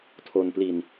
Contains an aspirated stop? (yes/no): yes